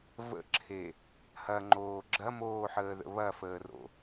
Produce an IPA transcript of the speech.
və̰ǁʰe | hɐŋ͡ǃoː ɡ͡ǁɐmoːħəːðə̰ βɐfəːro̰

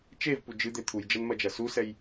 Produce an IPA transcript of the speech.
t͡ʃevpu d͡ʒɨd̪e t̪ʰujd͡ʒɐnmɐd͡ʒɐ susɛj

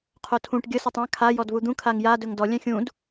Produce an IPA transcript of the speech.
qʰotʰũʈ ɡʲə sotˤã kʰa jɔdvud̪ũ kʰaŋja dɵŋdɔ lʲɛ̃xʲũd

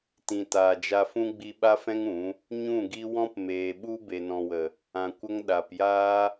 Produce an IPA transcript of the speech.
tĩ˨taː˨d͡ʒa˧fũ˦ ɡ͡bi˧ ɓa˦fɛ̃˦ŋ ũ˨˦ | ɲũ˦˨ɡi˦ wɔ̃˦pmeː˨ɓu˦ be˨nɔ̃˨wə˨ | ã˨kʷə˧ŋ ɗa˨pjaː˦

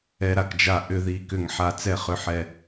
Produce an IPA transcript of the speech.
ɛ˧ɾa˧˩kd͡ʒa˧˩ ʔʏ˥˩ði˧˩kʏ˧˩ŋħa˧˩ t͡sɛ˥˩χʏ˧˥ħɛ˧

